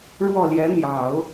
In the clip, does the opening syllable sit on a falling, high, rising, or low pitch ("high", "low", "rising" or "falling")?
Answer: falling